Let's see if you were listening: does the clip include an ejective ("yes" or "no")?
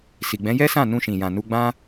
no